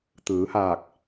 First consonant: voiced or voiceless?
voiceless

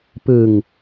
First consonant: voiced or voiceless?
voiceless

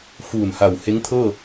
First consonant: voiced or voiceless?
voiceless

